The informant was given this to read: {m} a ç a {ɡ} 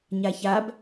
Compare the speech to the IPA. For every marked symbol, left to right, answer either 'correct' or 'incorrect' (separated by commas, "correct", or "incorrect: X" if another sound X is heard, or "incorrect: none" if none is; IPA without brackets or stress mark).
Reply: incorrect: ɲ, incorrect: b